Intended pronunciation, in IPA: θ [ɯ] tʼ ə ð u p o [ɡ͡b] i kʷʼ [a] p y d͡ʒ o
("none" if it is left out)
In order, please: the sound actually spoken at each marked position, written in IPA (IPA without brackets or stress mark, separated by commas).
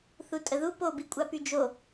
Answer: u, b, a